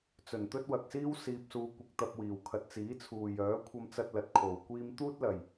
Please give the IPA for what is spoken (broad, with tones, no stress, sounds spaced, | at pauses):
t͡s ɵ˨˩ n t̪ ɵ˥ t̚ w ɐ˨ k̚ s iː˥ w s iː˧ p̚ s uː˧ kʷ ɪ˧ k̚ t̪ ɐ˧ p̚ w iː˨˩ w kʰ ɐ˨ t̚ t͡s iː˨˥ t͡sʰ uː˨ j œː˨˥ kʷʰ ɐ˧ m t͡s ɐ˧ t̚ l ɐ˨ t̚ kʰ o˨˩ w kʷ iː˧ m t̪ uː˥ t̚ l ɐ˨˩ j